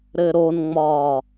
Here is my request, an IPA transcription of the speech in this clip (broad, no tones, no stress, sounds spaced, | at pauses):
ɾ ɘ ɾ o n ŋ͡m ɒː